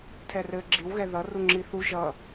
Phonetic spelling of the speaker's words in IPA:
tʰ ɛ r ɘ ɡ͡ǁ i w ɣ ɛ ð ʌ r u ŋ͡ǁ i θ u ʒ ʌ

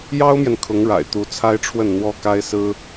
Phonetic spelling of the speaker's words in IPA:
j ɑ˥ ʊ̯ m j ɛ˨ n kʰ ʊ˧˥ ŋ ɻ a̰˨˩ ɪ̯ t̪ u˧˥ t͡sʰ a˥ ɪ̯ ʈ͡ʂʰ w ə˥˩ n n̪ w ɔ˥ k a˥ ɪ̯ s ɹ̩˥

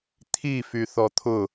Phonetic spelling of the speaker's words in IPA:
t̪ʰ i f y θ ɔ t̪ʰ ʊ

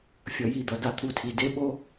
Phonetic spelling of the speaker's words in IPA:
fʲ ʌ˨ j i˦˨ d̪ ʌ˨ d a˦ t̪ʰ u˦ tʰ i˨ d e˦ ɓ o˦

